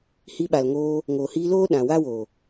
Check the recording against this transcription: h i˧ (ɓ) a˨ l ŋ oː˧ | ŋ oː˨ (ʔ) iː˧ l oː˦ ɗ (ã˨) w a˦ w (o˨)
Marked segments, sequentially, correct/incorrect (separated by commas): correct, incorrect, correct, correct